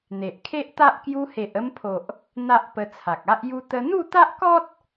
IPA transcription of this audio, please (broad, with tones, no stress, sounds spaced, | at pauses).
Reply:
n̪ e˨ ʔ kʰ e˦ ʔ t̪ a˦ ʔ k j u˧ h e˨ ʔ ə˧ m pʰ o˨ ʔ | n̪ a˦ ʔ p ə˧ t͡sʰ a˨ k̚ a˦ ʔ j u˦ t̪ ə˧ n̪ u˥˧ t̪ a˦ ʔ k ɔ˦ t̚